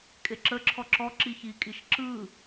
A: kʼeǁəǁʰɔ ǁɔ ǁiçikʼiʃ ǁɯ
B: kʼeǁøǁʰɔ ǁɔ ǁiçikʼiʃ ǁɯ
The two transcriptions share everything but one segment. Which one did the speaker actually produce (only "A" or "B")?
A